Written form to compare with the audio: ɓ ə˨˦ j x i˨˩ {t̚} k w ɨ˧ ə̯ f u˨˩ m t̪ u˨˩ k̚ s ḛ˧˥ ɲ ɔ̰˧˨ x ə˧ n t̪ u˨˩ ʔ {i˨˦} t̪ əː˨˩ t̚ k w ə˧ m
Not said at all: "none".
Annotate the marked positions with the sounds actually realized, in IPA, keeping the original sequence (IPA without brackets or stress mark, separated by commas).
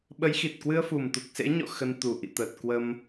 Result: t̚, ḭ˧˨